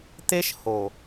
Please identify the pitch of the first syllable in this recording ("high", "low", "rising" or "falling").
high